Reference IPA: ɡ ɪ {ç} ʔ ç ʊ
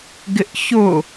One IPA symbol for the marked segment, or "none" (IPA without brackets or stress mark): none